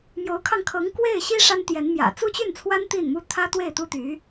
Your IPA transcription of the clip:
mjo˧˥ʊ̯kʰɑ˧ŋ kʰɤ˧˥ŋkwe˥˩ɪ̯ɕi˥ ʂa˥nt̪jɛ˧˥nmjä̰˨˩ t͡su˥t͡ɕy˥˩nt͡sʰwa˥n t̪i˥˩nmu˥ t̪ʰä˥t̪we˥˩ɪ̯t̪u˥t̪y˧˥

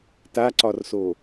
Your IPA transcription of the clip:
taǀɒrso

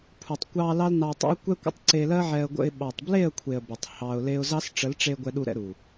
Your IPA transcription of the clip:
pʰu˨tˤkʷɑ˧ lɑ˦lnɑ˧tˤə̰˦ʊ̯ kʷɛ˦kʷə̰˦tˤ ǀe˧lɜ˦ʕɛ˧ə̯ɡʷə̰˧ɪ̯ ɓɑ˨tˤble˦˨ə̯kʷʰe˨ə̯ bə˨tˤhɑ˧ʊ̯le˦ʊ̯ zɑ˦s ʈ͡ʂə˨˦lʈ͡ʂe˧ ɡʷɛ˧ɗu˧ɾɛ̰˧ ɾu˨

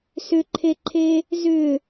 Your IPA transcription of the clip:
sʏǃʰeǃʰe | zʏ

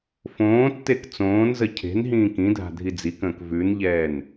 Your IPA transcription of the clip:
fõːtːek t͡sõːnzə cʰe̤nɦĩː kĩdʱa̤ dʱid͡zikə̃ːk vʉnʎɛːn

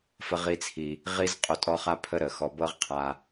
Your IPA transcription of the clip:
fə˧ʁi˧t͡sʰi˨ | ʁi˦z qʼo˧tʼɔ˦χa˦ pʰə˦ɾə˨xɔ˧ bɤ˦ʁqʰa˧

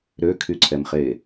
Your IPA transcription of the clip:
ɾøkʰyǀʰɛmχe

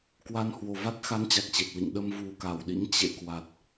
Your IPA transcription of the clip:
kwa˧nhwo˨˩ va˦˥t̚xa˨˦n t͡ɕa˨˩k̚t͡ɕe˨˩t̚lḭ˧˨ŋ ɗə˧m vu˨˩ka˧˩wɗḭ˧˥ŋ t͡ɕḛ˧˨kwa˨˩t̚

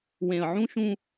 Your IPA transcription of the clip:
wẽ˨ə̯ʕũ˦ʃũ˦

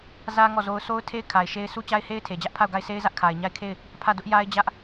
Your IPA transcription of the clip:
zä˦ ŋɔ˦˨zo˦ʊ̯ sʰo˦ʊ̯tʰe˦ɪ̯ kʰa˨ɪ̯ʃe˦ɪ̯ su˦t͡ɕa˦ɪ̯he˦ɪ̯tʰe˨ d͡ʑä˦ʔpʰa˦˨ʊ̯ɡa˦˨ɪ̯sʰe˦ɪ̯ zä˦ʔkʰa˨ɪ̯ɲa˦˨ɪ̯kʰe˦˨ɪ̯ | pʰä˦˨dʊ˦ʔ ja˦ɪ̯d͡ʑä˦ʔ

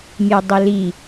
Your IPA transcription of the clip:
mʲedˤeli

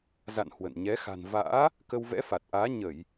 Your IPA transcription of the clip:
za̰˧˨n hwə̰˧˨n ɲɛ˨˦xa̤˨˩nva̰ː˧˥ | kə˧wvɛ̰˧˥fa˨˩t̚ʔaː˨˦ ɲə˧˩˨j

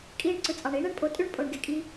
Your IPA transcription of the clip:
kʼiː˧ɳ ǀɯ˨t͡sʼɑ˨ɳiː˦ɳ e˦ɳpʼo˧ tʼy˦ɳ pʼo˨ɳɡe˨kʼiː˧

